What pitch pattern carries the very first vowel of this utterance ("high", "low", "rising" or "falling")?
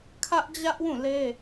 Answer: high